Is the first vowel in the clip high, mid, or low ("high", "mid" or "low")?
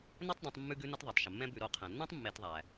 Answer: mid